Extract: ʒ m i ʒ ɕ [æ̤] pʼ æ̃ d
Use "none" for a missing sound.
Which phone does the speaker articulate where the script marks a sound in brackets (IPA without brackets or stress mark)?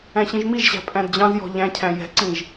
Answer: æ̤